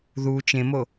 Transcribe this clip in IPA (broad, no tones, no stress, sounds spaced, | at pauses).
ð u t͡ʃ ẽ m o